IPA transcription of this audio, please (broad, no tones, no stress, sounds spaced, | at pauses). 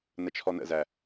n ə t͡ʃʰ ɔ n ə̰ z æ